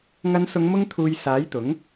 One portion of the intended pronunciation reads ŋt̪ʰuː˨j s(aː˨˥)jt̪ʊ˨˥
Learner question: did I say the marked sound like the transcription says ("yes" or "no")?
yes